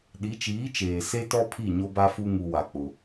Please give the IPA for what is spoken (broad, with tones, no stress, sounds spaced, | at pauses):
ɗ i˨˦ t͡ʃ iː˨˦ t͡ʃ eː˨ s e˦ t ɔ˦ pʰ i˦˨ ɲ o˦ b a˦ f u˦ ŋ u˨ w a˨ k͡p ʊ˦